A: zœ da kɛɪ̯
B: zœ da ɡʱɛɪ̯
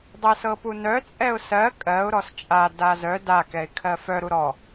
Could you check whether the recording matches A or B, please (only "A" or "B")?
A